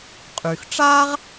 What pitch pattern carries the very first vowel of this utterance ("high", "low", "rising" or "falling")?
low